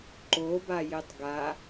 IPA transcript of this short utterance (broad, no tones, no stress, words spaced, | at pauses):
ǃobajetˤ ɡa